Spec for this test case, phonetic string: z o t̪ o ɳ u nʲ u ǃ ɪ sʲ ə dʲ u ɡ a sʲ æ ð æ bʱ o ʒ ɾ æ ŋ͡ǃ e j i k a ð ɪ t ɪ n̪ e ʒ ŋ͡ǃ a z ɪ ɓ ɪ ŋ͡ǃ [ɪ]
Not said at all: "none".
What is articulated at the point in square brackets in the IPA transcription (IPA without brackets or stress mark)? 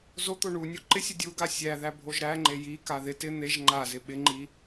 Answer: i